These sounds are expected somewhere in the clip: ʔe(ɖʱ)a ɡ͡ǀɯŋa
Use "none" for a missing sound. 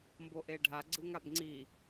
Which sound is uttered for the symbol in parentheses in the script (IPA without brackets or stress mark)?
ɖʱ